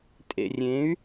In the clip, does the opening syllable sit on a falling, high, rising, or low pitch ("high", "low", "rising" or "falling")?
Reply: low